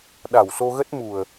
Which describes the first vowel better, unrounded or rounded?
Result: unrounded